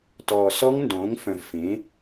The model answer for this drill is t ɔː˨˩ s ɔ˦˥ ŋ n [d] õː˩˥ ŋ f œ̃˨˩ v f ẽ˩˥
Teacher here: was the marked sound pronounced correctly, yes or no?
yes